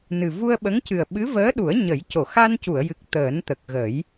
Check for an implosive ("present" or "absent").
present